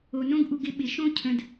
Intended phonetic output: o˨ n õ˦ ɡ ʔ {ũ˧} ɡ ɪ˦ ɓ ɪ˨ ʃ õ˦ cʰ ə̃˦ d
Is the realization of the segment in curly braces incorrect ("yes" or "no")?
yes